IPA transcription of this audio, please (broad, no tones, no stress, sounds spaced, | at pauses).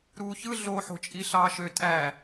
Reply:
ɾ uː ç ɯ ɮ o ħ o̤ t͡ʃʼ i ɬ ɑː ʃ ø tʼ æ